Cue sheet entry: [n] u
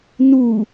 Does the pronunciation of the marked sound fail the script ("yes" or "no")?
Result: no